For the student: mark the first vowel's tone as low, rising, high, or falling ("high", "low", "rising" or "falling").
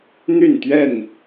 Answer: falling